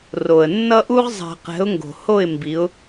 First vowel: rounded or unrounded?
rounded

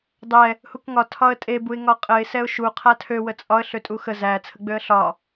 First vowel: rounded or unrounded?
unrounded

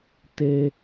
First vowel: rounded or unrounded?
unrounded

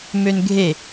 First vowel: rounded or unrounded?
rounded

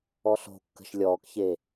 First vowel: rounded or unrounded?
rounded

